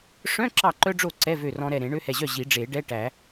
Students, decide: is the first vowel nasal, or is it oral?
nasal